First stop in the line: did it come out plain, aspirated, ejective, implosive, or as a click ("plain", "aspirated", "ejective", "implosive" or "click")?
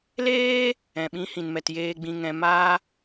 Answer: implosive